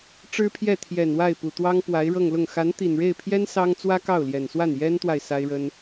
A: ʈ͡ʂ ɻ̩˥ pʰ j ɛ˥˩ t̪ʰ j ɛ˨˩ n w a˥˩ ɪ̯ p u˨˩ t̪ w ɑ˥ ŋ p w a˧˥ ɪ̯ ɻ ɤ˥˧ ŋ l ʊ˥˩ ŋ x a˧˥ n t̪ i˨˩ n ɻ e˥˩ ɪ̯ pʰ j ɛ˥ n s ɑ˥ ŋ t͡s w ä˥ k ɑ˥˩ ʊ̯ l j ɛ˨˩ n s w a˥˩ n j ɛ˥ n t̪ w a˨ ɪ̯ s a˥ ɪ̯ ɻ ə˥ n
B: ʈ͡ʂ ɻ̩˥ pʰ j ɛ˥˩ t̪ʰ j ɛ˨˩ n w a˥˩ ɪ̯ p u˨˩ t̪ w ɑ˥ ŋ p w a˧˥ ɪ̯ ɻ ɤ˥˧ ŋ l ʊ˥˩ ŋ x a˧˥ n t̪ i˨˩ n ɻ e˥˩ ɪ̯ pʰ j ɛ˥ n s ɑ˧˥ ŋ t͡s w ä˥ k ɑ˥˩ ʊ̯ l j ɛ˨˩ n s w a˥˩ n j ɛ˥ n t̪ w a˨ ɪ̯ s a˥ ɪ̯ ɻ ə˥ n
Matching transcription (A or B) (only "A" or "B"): A